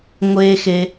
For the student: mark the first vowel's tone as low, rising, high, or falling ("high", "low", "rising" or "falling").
high